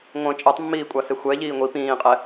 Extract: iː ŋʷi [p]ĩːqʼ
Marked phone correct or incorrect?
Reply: correct